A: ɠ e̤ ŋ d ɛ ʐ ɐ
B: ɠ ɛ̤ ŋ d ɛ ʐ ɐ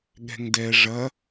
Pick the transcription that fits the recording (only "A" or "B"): B